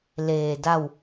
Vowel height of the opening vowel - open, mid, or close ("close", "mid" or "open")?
mid